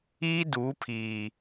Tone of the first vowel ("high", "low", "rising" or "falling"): high